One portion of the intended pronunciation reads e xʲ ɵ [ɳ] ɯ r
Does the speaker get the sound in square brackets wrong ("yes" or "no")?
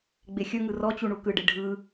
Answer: yes